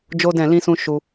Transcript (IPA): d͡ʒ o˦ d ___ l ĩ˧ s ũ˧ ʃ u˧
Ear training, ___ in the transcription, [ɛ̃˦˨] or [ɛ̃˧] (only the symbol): ɛ̃˦˨